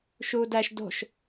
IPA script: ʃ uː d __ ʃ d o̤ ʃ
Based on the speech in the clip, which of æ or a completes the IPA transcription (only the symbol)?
æ